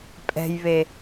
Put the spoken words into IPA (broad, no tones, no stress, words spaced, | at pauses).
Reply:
pʼɛ̤jβe